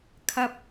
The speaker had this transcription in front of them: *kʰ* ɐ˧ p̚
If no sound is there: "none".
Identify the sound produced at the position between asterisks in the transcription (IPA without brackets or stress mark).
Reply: kʰ